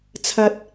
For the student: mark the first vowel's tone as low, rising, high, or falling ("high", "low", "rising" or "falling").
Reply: high